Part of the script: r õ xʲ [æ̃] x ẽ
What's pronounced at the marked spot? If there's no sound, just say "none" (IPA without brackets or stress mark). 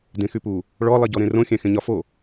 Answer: æ̃